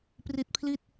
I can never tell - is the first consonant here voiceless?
yes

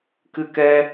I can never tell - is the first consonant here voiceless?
yes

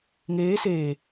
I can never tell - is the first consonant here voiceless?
no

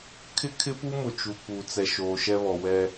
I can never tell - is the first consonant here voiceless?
yes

